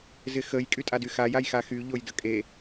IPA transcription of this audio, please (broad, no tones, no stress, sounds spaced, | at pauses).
z ɪ x ə j kʼ y tʼ a d y x a j a j x a x y ʎ o j d ə kʼ e